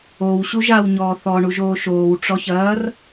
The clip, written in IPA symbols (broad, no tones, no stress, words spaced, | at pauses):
ow ɕuʒawɲɔː θɔ ɳuʒoːʃoːw ʈ͡ʂɔçɐːr